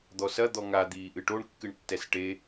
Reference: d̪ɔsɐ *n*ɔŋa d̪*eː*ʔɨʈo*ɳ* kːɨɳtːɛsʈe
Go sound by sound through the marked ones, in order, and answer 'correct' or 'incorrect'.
incorrect, incorrect, correct

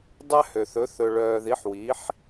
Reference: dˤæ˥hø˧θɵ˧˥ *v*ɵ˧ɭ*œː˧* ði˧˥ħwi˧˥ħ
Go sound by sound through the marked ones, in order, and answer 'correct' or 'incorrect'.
incorrect, correct

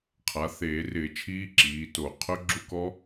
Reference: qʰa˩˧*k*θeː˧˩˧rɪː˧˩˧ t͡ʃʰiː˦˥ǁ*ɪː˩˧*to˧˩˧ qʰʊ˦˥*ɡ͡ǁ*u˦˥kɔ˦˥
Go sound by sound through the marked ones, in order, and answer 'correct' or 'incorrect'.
incorrect, incorrect, correct

